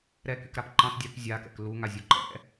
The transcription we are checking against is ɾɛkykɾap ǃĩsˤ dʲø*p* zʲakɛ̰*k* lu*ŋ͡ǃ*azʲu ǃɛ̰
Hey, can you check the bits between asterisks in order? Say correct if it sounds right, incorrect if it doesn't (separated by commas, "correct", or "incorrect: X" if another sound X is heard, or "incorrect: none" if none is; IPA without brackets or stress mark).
correct, correct, incorrect: ŋ